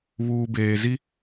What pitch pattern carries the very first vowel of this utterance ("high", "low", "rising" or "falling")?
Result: low